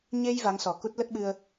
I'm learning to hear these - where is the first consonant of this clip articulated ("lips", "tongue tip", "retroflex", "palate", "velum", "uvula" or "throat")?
palate